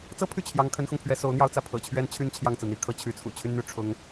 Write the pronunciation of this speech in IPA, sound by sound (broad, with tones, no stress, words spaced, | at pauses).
t͡sɤ˥pʰy˥˩ t͡ɕʰjɑ˧˥ŋ kʰə˧˥nxʊ˧ŋpʰɥɛ˧˥ so˧˥ʊ̯n̪jɑ˥˧ʊ̯t͡sä˥˩ pʰɤ̰˨˩t͡ɕʰɥɛ˥nt͡ɕʰy˥˧n t͡ɕʰjɑ˥˩ŋt͡sɹ̩˩n̪i˧˥kʰɤ˥˩ t͡ɕʰy˧˥t͡sʰṵ˨˩t͡ɕʰy˥nn̪y˥ ʈ͡ʂʰʊ˧˥ŋ